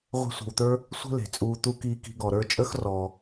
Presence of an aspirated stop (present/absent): absent